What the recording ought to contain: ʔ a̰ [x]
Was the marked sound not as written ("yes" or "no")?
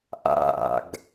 yes